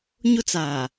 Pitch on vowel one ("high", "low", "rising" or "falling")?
high